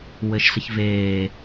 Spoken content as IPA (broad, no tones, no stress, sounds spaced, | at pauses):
w ɘ ʃ s ə ç v eː